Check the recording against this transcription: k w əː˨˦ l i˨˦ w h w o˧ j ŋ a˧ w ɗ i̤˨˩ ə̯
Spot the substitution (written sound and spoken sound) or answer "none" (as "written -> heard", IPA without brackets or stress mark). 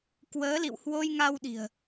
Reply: i˨˦ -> ḭ˧˨